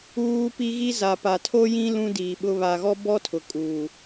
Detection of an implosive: present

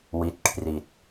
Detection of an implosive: absent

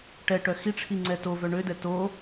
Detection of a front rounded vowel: present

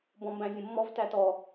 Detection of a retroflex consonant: absent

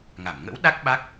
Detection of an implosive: present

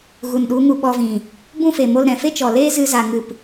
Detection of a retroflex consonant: absent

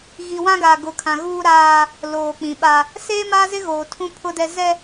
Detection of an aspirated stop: present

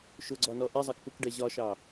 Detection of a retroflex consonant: present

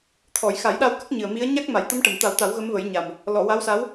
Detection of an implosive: present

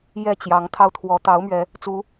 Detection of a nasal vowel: absent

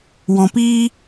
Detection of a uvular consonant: absent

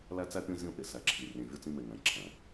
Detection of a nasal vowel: present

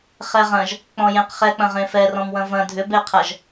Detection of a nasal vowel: present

